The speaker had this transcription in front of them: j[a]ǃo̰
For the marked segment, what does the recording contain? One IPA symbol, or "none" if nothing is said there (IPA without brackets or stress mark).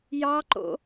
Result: ɑ